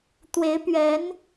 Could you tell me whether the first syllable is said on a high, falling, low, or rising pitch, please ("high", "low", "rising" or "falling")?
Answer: rising